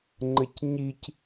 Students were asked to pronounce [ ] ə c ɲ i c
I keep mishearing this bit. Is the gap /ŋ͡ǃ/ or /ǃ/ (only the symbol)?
ŋ͡ǃ